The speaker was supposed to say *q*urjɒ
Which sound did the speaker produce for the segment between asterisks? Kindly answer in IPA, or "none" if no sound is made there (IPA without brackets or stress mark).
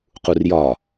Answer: q